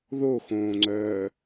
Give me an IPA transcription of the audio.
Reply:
ð o x õː ŋ͡ǀ œː

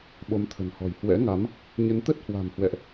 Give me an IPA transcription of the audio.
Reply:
ɓ o˨˦ m t̪ʰ ə̤˨˩ n h ɔ̤˨˩ j h w ɛ̰˧˥ ŋ a˨˦ m | ɲ ə˨˦ n t̪ ə˦˥ t̚ h w a̤˨˩ m h w ɛ̰˧˨ ʔ

